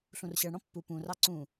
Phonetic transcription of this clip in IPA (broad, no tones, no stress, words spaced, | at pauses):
ɬũrɕɜɳɽɔ̃ pːu pũrɑ ǀũ